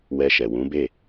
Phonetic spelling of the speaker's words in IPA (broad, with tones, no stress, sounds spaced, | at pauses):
w ɛ˧ ʃ ɛ˨ w ũ˨˦ b e˦˨